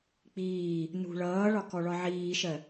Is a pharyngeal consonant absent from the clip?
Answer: no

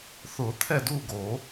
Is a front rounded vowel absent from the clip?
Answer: yes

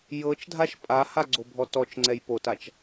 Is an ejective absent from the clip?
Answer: no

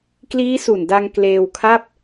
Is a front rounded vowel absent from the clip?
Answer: yes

